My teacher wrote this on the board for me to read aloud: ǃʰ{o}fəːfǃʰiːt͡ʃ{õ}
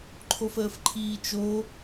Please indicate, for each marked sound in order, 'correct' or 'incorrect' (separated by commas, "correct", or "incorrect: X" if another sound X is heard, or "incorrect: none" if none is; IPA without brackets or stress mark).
correct, incorrect: o